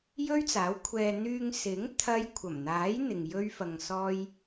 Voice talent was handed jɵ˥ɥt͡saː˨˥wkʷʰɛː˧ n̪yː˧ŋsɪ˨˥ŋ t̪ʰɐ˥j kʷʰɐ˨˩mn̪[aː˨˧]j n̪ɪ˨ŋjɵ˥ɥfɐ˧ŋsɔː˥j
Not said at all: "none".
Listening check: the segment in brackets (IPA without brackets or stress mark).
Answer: aː˨˥